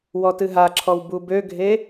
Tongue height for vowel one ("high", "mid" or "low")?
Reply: mid